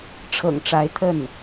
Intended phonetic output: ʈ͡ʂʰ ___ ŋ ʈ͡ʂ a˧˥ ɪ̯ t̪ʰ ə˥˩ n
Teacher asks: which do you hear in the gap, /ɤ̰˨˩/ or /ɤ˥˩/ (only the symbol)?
ɤ̰˨˩